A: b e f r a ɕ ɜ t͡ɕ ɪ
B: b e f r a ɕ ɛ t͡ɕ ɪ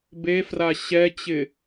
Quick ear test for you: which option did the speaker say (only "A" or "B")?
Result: B